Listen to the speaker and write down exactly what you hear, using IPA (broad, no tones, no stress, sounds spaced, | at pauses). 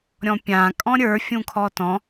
ɾʲ ɔ̃ pʲ ã kʼ ɔ̃ ɾʲ ə˞ fʲ ũ kʰ ɔ t ɔ̃